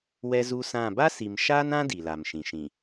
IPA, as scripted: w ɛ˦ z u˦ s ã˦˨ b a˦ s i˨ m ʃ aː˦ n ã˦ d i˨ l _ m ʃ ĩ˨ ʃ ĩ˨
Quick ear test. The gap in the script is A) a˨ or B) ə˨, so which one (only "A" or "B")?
A